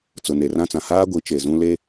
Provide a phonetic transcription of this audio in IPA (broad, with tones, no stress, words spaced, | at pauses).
t͡sʊ˨ne˨rã˦t͡sã˨ haː˦ɡʷi˨˦ t͡ʃe˨zũ˦ le˦